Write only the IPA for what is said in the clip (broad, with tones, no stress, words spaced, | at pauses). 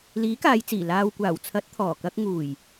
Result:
liː˨˥kaː˨˧jt͡siː˨˩ laː˨w kʷaː˨˩wt͡sʰɐ˨˥t̚ t̪ʰɔː˨˩kɐ˧k̚ ŋuː˨˩j